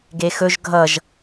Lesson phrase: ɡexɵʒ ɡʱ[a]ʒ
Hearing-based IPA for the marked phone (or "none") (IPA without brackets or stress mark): ʌ